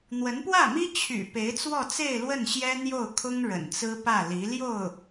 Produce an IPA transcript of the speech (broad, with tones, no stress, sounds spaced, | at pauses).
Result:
n̪ w ə˧˥ n p w ä˥˩ m i˥ t͡ɕʰ y̰˨˩ p e˧˥ ɪ̯ t͡s w ɔ˥˧ t͡s e˥˧ ɪ̯ l w ə˥˩ n ɕ j ɛ˥ n̪ j o˥˩ ʊ̯ kʰ ʊ˥ ŋ ɻ ə̰˨˩ n t͡s ɹ̩˥ p ä˥˩ l i˧˥ l j o˥˩ ʊ̯